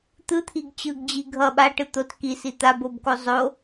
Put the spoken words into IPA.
t̪ɯt̪ʰiɡ t͡ɕɯɡd͡ʑi ɡʱʌ ɓaʈɯ t̪ot kisi t̪abobko zˤo

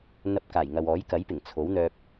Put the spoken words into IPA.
n̪ɐ˧p̚ kaː˨˩jŋɐ˨wɔː˨˥j kɐ˨˥jpɪ˨˩ŋ t͡sʰo˨˥wn̪œː˧p̚

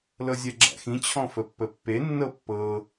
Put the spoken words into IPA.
lɤzʲɛɡ͡ǁæ̰xĩ t͡ɕʰɔ̃fəpːəpːe nːɤpːɤ

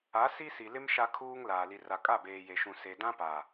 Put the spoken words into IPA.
a˨˦ si˦si˨lɪ˦m ʃa˦kʰuː˦ŋ laː˨li˨ ra˨kʼa˦˨beː˨ je˨ʃũ˨ se˨ dã˦pa˨

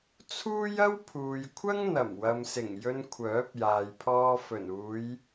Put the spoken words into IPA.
t͡sʰuː˥jɐ˥wpʰuː˨jkʷʰɐ˥ŋ n̪ɐ˨˩mwɐ˨msɪ˨˩ŋ jɵ˧n kʷʰœː˨˥p̚jaː˨jpʰɔː˧ fɵ˨˩nuː˨˧j

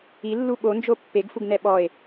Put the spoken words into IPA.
ilːu ɓond͡ʒo pːeɡfuɡnɛ ɓɔe̯

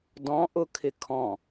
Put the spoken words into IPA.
dɔ̃ʔʊkʰɪ kʰɔ̃

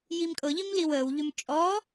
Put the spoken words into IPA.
jimkʼɤʎim liwəːwʎʏm t͡ʃʼɔ

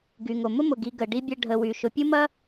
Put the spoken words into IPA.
ɡy˩ŋo˩ mʊ˥mʊ˩ɡi˨ ɡə˩ɖi˥bʲɐ˦ ɖʱə˨wy˩ ʃʊ˨pʲu˥mɐ˥

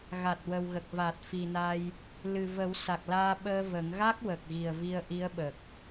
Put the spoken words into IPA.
ɣa˨˩t̚wə˨˩wɣə˨˩k̚va˨˩t̚ fi˨˩na˧j | lɨ˨˩və˨˩˦w sa˨˩k̚laː˧ɓəː˧ və˨˩˦ŋ ɣa˦˥k̚ wə˨˩k̚ɣi˨˩ə̯vi˧ə̯ ʔi˧˥ə̯ɓə˨˩k̚

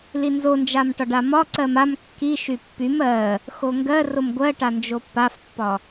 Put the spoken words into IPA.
linzond͡ʒamʈɒɖ amɒǀɜm am kːi ʃypːym ɜ | xoŋɡɜ romɡʷɜʈa nd͡ʒopːafpːɒ

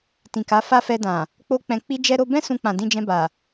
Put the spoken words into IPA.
tĩ˨ka˨˦fa˦ fɛ˧dã˨ | k͡po˦k͡pɛ̃˧ k͡pi˧d͡ʒɛ˧ɾo˧ bɛ̃˦ sũ˧k͡pã˨ dĩ˧d͡ʒɛ̃˧ba˨

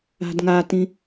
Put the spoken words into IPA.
a̤dŋatĩ

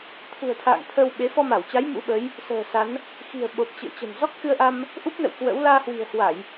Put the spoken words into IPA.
t̪ʰṳ˨˩ə̯t̪ʰa̰ː˧˨ŋ t̪ʰə˧w ɓe˨˦ fɔ˧ma˧˩wt͡ɕa˨˦j mṵ˧˥ɓə˨˦j | sə̤ː˨˩sa˨˦n | xi̤˨˩ə̯ɓo˨˩p̚ t͡ɕɨ̰˧˨ə̯t͡ɕə̤˨˩n zɔ˦˥k̚xɨ˧ə̯ʔa˧m | ʔu˦˥p̚nə̰˧˨w kwə̰˧˥w laː˧hwi̤˨˩ə̯hwa˧˩˨j

